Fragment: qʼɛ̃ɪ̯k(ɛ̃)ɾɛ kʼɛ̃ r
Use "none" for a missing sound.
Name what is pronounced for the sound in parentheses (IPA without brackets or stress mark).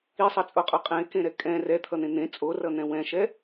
ẽ